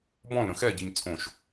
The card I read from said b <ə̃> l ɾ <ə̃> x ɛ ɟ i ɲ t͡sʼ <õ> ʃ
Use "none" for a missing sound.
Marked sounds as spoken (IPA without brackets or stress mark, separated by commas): ɔ̃, ə̃, õ